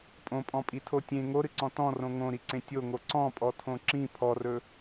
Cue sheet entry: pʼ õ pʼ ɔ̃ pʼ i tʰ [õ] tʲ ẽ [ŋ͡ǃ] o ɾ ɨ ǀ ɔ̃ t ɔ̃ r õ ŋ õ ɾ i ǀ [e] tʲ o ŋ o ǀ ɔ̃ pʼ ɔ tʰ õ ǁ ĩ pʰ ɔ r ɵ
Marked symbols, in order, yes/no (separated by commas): no, no, no